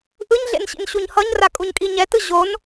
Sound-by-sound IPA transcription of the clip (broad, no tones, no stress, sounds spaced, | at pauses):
ʔ ɯ ɲ ɮ ḛ n ɕ ḭ n ɕ u ɲ h ʌ ɲ r a kʼ u ɲ kʼ i ɲ ɛ t ɯ ʑ o n